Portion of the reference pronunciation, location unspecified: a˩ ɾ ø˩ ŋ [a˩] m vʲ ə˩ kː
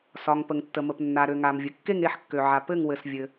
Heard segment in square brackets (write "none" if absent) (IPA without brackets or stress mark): a˩